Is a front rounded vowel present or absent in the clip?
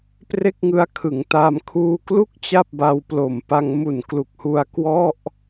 absent